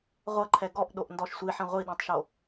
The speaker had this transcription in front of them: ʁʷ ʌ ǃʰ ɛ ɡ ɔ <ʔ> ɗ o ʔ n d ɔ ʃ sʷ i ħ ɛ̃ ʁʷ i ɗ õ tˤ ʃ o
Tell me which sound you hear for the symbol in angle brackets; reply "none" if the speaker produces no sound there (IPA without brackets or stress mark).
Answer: ʔ